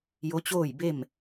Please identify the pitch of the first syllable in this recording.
rising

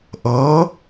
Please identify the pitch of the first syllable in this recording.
rising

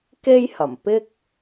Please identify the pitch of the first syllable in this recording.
high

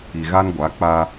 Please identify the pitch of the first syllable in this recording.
low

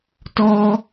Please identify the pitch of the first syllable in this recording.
high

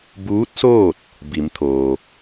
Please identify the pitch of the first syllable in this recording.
rising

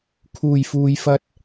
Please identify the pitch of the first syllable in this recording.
low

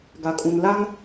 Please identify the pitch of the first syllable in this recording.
low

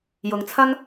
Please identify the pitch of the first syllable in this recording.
low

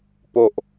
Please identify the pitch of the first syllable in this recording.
low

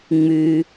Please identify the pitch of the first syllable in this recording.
low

